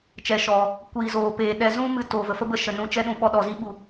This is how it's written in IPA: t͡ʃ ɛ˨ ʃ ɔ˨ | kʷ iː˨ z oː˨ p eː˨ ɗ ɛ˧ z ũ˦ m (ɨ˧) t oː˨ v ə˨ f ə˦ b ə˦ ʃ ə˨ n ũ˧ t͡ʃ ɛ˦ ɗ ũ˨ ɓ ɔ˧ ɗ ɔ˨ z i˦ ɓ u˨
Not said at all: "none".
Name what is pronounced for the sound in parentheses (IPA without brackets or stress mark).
ɨ˧